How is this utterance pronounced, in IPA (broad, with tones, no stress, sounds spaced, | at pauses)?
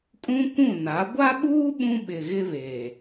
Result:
kʼ ũ˦ kʷ ũ˦˨ n a˨˦ ɡʷ a˦ ɓ uː˦ ɓ ũ˦ ɓ ɪ˨ ɣ ɪ˦ β e˨